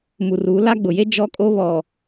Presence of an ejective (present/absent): present